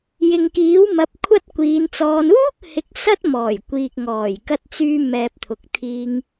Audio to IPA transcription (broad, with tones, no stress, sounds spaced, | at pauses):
j ɪ˨ ŋ k iː˨˥ w m ɐ˨˥ p̚ kʷʰ ɐ˥ t̚ kʷ iː˨˧ n t͡s ɔː˧ n uː˥ k̚ h ɪ˨˥ k̚ s ɐ˥ t̚ m ɔː˨˩ j kʷ iː˨ k̚ ŋ ɔː˨˩ j k ɐ˧ t̚ t͡s yː˧ m ɛː˨ p̚ t̪ʰ ʊ˨ k̚ t̪ʰ iː˧ ŋ